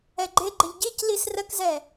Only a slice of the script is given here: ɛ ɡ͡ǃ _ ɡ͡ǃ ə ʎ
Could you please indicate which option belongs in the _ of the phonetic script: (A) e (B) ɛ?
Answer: A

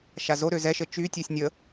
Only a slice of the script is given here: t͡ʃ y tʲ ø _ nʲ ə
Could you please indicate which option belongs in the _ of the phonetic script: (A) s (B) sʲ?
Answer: B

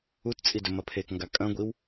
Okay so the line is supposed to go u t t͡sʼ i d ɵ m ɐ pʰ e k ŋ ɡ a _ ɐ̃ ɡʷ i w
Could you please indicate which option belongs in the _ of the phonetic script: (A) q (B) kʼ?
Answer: B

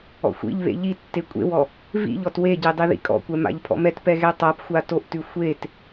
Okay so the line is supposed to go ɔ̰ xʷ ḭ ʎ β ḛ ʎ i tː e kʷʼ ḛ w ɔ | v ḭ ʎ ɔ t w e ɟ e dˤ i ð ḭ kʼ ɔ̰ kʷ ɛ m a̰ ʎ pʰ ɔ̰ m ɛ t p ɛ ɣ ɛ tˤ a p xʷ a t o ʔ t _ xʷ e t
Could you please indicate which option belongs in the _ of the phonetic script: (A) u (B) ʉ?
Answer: B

